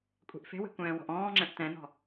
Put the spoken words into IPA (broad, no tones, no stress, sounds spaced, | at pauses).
kʷʼ e̤ ʔ f e̤ w e̤ kʷ ɛ̃ː w ɔ̤ ʔ ɔ̃ː ŋ͡ǁ ɛ̃ ʔ t̪ ɛ̃ n̪ ɔ̤